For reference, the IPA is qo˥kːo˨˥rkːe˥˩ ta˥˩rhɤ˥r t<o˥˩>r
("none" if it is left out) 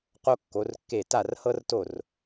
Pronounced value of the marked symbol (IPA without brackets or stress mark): o˥˩